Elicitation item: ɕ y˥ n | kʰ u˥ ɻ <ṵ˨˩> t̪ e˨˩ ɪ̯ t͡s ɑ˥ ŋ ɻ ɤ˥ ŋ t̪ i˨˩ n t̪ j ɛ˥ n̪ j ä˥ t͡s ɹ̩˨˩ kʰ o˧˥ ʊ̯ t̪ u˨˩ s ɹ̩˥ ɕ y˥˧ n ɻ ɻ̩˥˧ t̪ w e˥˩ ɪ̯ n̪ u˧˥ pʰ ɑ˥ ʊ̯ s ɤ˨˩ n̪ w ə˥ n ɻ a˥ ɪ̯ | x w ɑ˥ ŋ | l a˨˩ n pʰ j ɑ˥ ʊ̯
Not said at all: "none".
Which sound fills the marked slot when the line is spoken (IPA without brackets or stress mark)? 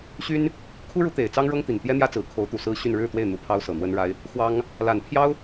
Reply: u˧˥